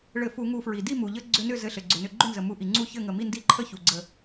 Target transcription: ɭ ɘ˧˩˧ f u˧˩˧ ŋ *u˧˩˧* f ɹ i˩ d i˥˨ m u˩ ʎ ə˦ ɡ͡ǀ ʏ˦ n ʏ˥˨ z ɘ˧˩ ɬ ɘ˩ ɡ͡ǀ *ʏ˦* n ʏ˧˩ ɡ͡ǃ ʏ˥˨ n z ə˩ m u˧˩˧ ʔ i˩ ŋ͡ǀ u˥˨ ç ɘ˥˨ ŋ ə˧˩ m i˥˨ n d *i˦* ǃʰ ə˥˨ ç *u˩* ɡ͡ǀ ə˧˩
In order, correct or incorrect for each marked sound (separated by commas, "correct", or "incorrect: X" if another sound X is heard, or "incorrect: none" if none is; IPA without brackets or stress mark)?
correct, incorrect: ʏ˩, incorrect: i˥˨, correct